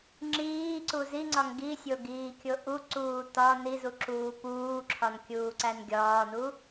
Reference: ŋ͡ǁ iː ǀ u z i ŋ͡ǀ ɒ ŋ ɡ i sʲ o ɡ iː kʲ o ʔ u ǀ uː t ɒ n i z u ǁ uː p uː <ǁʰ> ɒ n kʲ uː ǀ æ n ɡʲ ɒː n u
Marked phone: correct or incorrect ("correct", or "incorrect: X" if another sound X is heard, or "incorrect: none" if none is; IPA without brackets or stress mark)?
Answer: correct